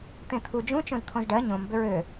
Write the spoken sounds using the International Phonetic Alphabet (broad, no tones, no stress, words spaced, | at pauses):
t̪ẽt̪ʰu d͡ʒũ t͡ʃõzt̪ʰõzɖɜ ɲõm bʏɹø